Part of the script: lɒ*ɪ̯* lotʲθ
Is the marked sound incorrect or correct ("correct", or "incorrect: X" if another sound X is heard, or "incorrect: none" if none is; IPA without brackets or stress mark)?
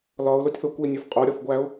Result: incorrect: ʊ̯